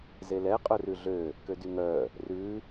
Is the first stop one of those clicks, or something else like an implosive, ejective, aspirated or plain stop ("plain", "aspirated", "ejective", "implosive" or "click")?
ejective